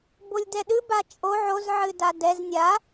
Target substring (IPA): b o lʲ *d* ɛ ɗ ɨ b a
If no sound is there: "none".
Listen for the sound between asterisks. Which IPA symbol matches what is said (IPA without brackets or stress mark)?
d